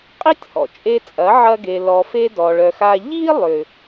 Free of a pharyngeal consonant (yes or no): no